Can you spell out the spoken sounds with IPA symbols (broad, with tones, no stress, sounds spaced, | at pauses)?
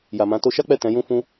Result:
j a˨ m ã˨˦ t o˧ ʃ a˦ k͡p ɛ˦˨ t ɛ̃˨˦ j ũ˦ f ũ˦